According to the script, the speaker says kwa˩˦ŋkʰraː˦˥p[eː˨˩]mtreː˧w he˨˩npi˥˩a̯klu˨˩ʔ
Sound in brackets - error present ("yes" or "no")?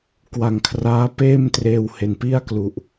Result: yes